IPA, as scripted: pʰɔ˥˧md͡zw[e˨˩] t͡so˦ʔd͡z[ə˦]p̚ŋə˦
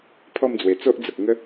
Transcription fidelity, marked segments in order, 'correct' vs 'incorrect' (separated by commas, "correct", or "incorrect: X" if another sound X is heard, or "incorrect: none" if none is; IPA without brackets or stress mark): correct, incorrect: ə˨